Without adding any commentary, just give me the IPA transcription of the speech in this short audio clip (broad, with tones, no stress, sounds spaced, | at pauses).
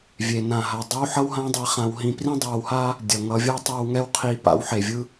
vʲ e˨ n ã˨ ɦ a˨ dˤ i˦ w ħ ʌ˦ w ɦ ã˦ dˤ e˧ χ ã˧ w ɦ ĩ˧ p r ĩ˦ dˤ a˧ w h a˦ | dʲ ʌ˨ ŋ ʌ˧ vʲ ʌ˦ tˤ a˦ w ŋ ɛ˦ w qʰ i˧ p a̰˧ w ħ e˨ vʲ ɯ˧